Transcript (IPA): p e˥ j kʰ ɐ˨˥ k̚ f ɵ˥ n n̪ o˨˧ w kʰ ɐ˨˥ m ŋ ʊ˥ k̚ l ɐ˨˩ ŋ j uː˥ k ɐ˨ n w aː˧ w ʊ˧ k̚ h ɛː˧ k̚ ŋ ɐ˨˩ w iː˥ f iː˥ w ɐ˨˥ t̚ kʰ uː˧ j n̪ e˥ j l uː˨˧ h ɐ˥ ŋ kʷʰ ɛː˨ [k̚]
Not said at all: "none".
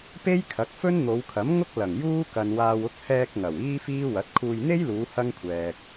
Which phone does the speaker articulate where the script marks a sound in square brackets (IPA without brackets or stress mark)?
k̚